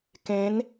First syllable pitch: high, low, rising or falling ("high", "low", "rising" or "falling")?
rising